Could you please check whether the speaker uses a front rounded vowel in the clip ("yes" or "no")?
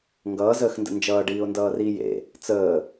no